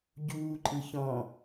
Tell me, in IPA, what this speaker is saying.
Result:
ɟ uː ǃʼ ɯ ç ɔ̃

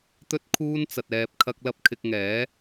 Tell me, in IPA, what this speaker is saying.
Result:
t̪ ɵ˥ t̚ kʰ uː˥ n t͡s ɐ˧ t̚ ɛː˧ p̚ kʰ ɐ˥ k̚ l ɐ˧ p̚ kʰ ɪ˧ k̚ ŋ ɛː˨˥

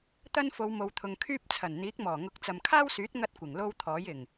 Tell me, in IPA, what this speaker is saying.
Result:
t̪ ɐ˥ n f o˨˧ w m o˨ w t̪ʰ ʊ˨ ŋ kʰ yː˥ p̚ t͡sʰ ɐ˨˩ n n̪ iː˨˥ k̚ m ɔː˨˩ ŋ ʊ˨˥ k̚ t͡s ɐ˨ m kʰ aː˥ w s yː˨˥ t̚ ŋ ɐ˥ t̚ kʷ ɪ˨˩ ŋ l o˥ w t̪ʰ ɔː˨˥ j ɪ˨˩ ŋ

